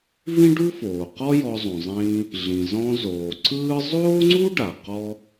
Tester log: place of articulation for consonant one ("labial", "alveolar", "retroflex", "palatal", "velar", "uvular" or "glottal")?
labial